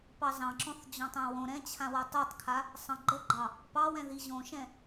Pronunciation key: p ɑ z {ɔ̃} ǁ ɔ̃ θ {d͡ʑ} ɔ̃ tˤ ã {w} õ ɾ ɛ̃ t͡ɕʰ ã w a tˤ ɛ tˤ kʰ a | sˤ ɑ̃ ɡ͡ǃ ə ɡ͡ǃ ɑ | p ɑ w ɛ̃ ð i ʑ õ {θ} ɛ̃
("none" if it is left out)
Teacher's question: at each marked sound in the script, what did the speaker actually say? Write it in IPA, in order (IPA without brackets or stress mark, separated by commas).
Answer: ɑ̃, d͡ʑ, w, ʃ